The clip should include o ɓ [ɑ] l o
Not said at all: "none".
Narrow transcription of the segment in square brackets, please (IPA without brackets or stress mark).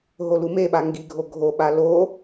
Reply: a